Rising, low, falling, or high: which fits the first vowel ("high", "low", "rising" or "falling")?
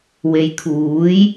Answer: low